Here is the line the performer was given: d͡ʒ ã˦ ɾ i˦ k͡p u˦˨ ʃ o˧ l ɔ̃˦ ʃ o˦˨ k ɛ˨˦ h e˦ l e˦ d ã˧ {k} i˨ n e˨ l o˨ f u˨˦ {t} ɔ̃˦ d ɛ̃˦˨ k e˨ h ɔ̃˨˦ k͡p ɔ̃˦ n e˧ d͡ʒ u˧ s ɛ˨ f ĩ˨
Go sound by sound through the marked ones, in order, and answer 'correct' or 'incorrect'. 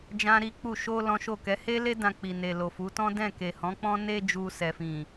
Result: incorrect, correct

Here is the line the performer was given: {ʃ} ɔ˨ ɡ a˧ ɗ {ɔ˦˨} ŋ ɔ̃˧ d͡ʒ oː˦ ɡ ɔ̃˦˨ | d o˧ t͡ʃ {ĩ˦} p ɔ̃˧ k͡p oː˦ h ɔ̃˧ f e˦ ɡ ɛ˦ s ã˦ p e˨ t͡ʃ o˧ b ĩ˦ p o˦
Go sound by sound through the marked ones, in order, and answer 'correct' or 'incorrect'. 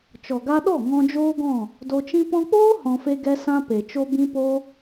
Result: incorrect, correct, correct

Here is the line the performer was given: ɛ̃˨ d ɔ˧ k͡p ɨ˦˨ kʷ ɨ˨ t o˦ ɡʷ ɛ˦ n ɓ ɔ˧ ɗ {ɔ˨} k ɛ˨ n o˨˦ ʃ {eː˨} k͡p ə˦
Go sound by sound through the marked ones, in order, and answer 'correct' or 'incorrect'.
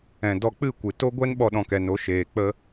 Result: incorrect, correct

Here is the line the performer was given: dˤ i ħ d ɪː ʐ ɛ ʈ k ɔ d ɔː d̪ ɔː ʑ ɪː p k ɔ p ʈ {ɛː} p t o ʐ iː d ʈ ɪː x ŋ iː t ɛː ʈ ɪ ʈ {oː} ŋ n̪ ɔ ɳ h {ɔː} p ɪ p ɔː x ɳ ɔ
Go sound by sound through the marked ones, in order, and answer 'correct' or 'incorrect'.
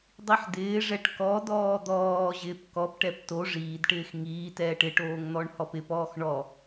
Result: incorrect, correct, incorrect

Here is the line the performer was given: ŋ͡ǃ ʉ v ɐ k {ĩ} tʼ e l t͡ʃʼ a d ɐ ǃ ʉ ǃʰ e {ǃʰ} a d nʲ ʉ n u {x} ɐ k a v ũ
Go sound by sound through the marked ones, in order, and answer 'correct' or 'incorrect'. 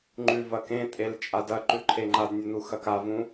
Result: incorrect, incorrect, correct

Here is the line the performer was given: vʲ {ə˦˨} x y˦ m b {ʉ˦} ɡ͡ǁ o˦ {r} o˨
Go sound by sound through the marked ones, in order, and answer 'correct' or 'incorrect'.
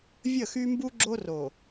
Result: correct, incorrect, correct

